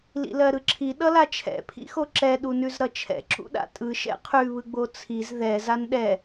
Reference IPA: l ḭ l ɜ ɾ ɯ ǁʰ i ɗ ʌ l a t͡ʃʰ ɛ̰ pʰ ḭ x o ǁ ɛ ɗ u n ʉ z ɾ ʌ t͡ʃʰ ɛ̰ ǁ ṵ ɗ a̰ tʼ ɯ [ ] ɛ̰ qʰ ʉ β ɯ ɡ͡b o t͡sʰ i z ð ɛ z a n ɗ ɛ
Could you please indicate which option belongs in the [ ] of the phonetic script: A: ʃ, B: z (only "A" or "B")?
A